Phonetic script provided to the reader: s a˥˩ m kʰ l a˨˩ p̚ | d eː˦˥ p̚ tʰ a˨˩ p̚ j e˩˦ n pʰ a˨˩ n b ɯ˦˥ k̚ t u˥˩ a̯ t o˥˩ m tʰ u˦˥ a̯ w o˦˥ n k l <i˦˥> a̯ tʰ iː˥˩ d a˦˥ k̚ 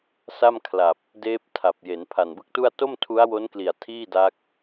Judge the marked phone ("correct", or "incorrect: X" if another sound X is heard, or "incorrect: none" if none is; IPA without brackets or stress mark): incorrect: i˨˩